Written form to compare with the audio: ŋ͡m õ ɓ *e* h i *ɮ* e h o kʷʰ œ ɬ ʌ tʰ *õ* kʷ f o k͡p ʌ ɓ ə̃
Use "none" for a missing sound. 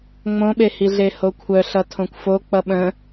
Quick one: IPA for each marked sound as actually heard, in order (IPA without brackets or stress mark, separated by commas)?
e, ɮ, õ